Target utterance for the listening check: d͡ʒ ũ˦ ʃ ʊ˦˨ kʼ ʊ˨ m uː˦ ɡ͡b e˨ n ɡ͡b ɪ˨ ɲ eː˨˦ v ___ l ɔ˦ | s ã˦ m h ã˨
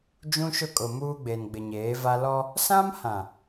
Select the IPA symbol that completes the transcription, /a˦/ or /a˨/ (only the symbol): a˦